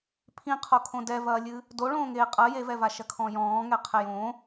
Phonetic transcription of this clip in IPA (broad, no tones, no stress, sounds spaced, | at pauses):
pʰ ĩ qʰ o kʰ õ d ɛ v ɐː lʲ ɨ | d o ɭ õː ŋ eː qʼ ɐ j e v ɛ v a ʃ ɐ kʰ ɔ̃ j ɔ̃ː ŋ ɛ qʰ ɛ j õ